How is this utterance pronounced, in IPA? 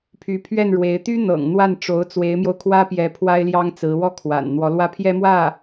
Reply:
pʰ y˧˥ pʰ ɥ ɛ˥˩ n ɻ w e˧˥ ɪ̯ t̪ y˥ n̪ ɤ̰˨˩ ŋ n̪ w a˥˩ n ʈ͡ʂ o˧˥ ʊ̯ t͡s w e˧˥ ɪ̯ m j o˧ ʊ̯ kʰ w ä˥ p j ɛ˧˥ pʰ w a˥ ɪ̯ l j ɑ˥ ŋ t͡s ɹ̩˧˥ w ɔ˥ kʰ w a̰˨˩ n n̪ w ɔ˧˥ l w ä˥ pʰ j ɛ˥ m w ä˥˩

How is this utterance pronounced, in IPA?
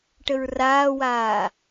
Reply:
ʈ ə ɹ r aː w aː

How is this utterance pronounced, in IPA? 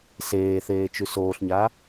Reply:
s eː θ eː t͡ʃ ʉ s oː ɬ ɲ a

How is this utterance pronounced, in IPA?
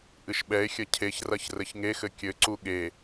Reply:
ʔ ɨ ʃ ɓ ɛ e̯ xʲ ɐ cʰ e ç r ɐ ç r ɘ ç ŋ e x ɘ kʲ ɘ ǀ u ɠ e

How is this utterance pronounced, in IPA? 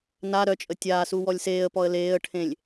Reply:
n a ɾ œ t͡ʃʼ ə tʲ aː s u w ɔ lʲ s eː ə̯ p ɔ ə̯ l eː ə̯ ʈʰ ẽ lʲ

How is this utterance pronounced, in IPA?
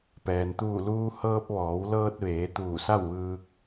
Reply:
p ɛː˩ n t̪ uː˧˩ l uː˧ h ɤː˧ p̚ ʋ ɔː˩˧ w l ɤː˧ t̚ ʋ eː˩˧ t̪ uː˧˩ s a˥˨ w ʋ ɯː˧ k̚

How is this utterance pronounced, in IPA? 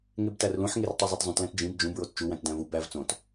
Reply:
ŋ e b t æ r l ũ ħ ŋ e r tˤ u zˤ e t zˤ ũ t l æ̃ t d͡ʒ ĩ b d͡ʒ ũ b ɹ o t t͡ʃ u w æ̃ t d æ̃ v u b æ v t͡s õ t

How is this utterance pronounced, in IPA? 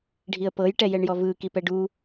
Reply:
ɖʱ i ə̯ p ɤ j ʈ ɛ j ɛ ɳ j ɔ v ɯː k i p ɛ ɖ u

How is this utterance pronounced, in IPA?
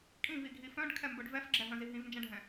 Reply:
kʼ ĩ v i ɡʱ i f œ̃ ɖ kʰ ɛ m b œ ɖ v ɛ f ɡ͡ǁ ɛ ɦ œ̃ z i ɦ ĩ v n d͡ʒ ɛ̃ ɖʱ ɛ̃

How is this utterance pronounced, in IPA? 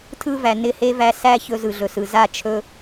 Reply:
tʰ ɯ˦ v æ˨ n ɪ˦˨ h e˦ v æ˧ s æ˦ ç ɵ˧ z ɯ˨ ɮ ɵ˨ s ɯ˨ z a˦ t͡ʃʰ ɵ˦

